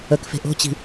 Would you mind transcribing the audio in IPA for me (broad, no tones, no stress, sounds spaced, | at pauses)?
ə k f e̤ ʔ o̤ t͡ɕ i̤